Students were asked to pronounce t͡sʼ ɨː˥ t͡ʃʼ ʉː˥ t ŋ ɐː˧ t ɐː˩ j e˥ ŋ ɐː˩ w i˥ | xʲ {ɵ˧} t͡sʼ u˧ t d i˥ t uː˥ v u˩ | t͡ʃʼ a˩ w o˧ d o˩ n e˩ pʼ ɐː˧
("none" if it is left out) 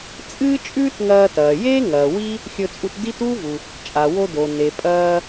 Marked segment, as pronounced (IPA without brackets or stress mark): ɵ˧